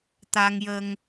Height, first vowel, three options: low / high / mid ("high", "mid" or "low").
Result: low